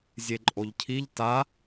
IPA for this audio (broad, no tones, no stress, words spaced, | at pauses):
zʲeǃʼoʎcʰiʎ ta